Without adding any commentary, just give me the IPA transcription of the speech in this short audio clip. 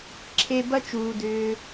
ǁʰ e˧ b ɐ˦ t͡ʃ uː˨ d ʏː˧

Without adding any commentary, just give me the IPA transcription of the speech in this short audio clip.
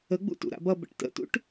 ə ɡ͡b ṵ t ṵ ɾ a̰ b ʌ b ə̰ ʈ t ə̰ t ṵ ʈ

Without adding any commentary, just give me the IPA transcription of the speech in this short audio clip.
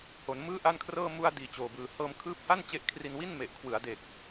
h o˩˦ n m ɯː˥˩ ʔ a˥˩ n kʰ r ɤː˥˩ m u˧ a̯ d iː˨˩ t͡ɕ oː˨˩ b ɯː˨˩ h ɤː˧ m kʰ ɯː˦˥ p̚ h a˥˩ n t͡ɕ e˦˥ ʔ kʰ r i˧ n w i˥˩ n m e˨˩ ʔ kʰ w ɯ˩˦ a̯ d e˨˩ k̚

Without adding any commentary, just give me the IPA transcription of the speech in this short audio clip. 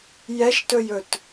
j ɛ ʃ t ɵ j ɵ t

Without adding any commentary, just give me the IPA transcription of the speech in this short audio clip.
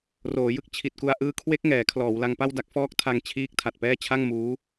r oː˩˦ j ɯ˥˩ k̚ t͡ɕʰ i˨˩ t̚ k u˧ a̯ ʔ ɯː˦˥ kʰ w e˦˥ k̚ ŋ ɛː˩˦ kʰ l ɔː˩˦ w l a˧ ŋ p a˥˩ w d a˦˥ k̚ f ɔː˦˥ k̚ tʰ a˧ ŋ t͡ɕʰ iː˦˥ k̚ tʰ a˨˩ t̚ p ɛː˥˩ t͡ɕʰ a˥˩ ŋ m uː˦˥

